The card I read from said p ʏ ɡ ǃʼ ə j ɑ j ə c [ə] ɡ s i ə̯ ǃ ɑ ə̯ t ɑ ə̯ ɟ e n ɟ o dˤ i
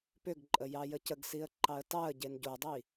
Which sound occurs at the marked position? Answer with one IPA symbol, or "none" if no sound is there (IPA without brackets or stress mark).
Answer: ə